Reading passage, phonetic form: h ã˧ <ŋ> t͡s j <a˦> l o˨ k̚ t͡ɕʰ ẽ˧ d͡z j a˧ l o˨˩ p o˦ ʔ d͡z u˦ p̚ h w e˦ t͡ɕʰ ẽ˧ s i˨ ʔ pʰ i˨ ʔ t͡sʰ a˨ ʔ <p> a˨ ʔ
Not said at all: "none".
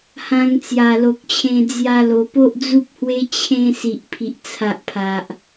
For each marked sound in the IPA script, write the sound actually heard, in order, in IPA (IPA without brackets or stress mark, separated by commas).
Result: ŋ, a˨˩, pʰ